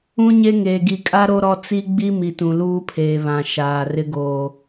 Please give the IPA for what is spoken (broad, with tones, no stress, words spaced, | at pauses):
ũ˦ɲe˦ŋeː˨ ɡi˨kʼa˦ ɾo˦ɾɔ˦ t͡si˦ɡ͡bi˦ mi˨tũ˨luː˦pʰeː˨ βã˨ ʃaː˨rɪ˦ ɡoː˨